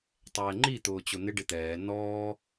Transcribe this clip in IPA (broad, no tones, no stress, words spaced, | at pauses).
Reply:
tˤɛːŋ͡ǃi t̪ʊːt͡ɕʊn̪ɪ ɖɪt̪ɛː nɔː